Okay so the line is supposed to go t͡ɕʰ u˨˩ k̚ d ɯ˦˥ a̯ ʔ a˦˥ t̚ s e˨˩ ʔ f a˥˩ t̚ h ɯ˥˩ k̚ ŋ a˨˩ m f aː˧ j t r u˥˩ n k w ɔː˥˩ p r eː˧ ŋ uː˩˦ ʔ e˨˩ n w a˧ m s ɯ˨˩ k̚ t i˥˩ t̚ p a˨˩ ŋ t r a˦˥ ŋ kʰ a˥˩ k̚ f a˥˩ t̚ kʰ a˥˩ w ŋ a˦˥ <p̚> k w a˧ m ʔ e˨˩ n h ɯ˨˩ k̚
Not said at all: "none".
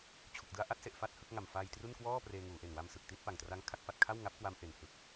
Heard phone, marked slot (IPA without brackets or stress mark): p̚